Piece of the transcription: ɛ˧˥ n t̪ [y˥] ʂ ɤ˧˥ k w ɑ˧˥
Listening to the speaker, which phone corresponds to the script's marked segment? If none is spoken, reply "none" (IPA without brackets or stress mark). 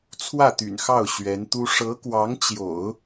u˥